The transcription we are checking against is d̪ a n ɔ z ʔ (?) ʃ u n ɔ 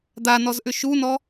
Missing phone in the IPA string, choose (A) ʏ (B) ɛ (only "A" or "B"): A